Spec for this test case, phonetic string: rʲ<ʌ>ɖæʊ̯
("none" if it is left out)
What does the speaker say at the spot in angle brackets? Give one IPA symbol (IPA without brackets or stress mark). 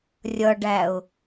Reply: ʌ